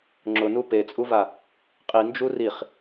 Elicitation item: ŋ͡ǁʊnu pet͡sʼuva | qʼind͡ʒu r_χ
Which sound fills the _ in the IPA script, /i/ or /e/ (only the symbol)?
i